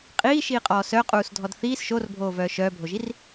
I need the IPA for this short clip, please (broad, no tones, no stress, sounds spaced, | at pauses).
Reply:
qʼ iː ʃ iː qʼ ɔː s œ qʼ uː s dʱ ɔ d θ iː s ʃ o r bʱ oː v œː ʃ œː bʱ o ʒ i r